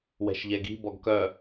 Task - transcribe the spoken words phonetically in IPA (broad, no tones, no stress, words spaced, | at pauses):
wɛ̤ʃʎɛɡi̤ bɔɡkœ